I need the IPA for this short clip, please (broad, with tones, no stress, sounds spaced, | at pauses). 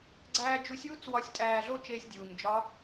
ɡ͡ǀ æː˥ d͡ʒ u˧˥ sʲ w u˥ t͡s w ɒ˧ sʲ tʼ æː˧ ɮ o˥ t͡ʃ eː˧ sʲ dʲ uː˩ ɲ d͡ʒ ɒ˧˥